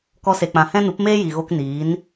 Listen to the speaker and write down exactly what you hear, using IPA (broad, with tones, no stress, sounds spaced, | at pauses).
k ɔ˧ s e˨ k͡p ã˨ h ɛ̃˦ n u˨˦ p m eː˦ j i˨ ɣ o˧ k n iː˨˦ n